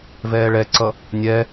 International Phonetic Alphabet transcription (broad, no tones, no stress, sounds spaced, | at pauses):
v ɛː ɭ ɛ ǀ ʌ | nʲ ɛ